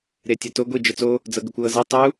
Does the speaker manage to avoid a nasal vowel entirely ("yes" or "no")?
yes